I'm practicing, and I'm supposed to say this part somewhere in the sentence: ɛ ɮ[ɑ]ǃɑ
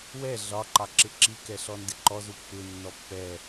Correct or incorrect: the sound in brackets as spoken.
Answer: incorrect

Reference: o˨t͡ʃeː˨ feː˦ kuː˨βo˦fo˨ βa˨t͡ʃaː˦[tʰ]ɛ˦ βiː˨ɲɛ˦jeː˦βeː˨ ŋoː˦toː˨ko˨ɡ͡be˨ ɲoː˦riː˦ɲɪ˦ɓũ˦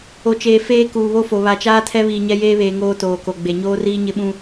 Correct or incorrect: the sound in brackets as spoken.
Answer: correct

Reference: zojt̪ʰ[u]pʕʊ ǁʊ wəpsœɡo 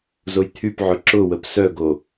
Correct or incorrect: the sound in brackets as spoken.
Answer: incorrect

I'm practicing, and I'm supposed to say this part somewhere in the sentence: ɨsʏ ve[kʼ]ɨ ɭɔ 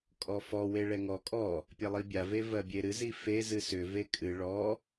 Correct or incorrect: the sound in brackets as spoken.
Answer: correct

